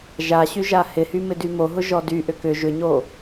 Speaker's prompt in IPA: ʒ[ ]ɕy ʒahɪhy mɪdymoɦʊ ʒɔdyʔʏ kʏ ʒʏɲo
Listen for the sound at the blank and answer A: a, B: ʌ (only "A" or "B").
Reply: A